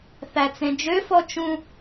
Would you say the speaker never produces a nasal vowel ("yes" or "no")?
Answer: no